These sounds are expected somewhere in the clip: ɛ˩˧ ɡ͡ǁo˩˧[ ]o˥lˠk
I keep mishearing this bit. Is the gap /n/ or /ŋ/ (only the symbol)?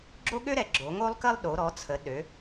ŋ